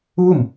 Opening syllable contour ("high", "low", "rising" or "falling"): falling